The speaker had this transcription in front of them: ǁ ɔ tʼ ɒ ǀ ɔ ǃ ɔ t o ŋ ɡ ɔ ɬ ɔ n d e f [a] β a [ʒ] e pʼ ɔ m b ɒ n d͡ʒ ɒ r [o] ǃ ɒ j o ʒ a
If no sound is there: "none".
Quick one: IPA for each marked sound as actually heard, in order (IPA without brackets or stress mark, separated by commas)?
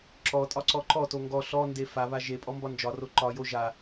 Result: a, ʒ, o